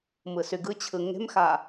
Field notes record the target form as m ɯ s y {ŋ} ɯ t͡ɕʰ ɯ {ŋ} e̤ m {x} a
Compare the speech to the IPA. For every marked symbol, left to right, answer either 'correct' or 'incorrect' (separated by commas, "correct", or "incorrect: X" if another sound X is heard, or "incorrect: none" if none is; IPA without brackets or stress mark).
incorrect: ɡ, correct, correct